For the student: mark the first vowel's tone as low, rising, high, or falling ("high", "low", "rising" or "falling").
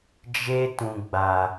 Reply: high